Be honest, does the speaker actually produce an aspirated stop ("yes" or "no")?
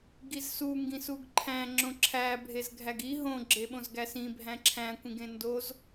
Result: yes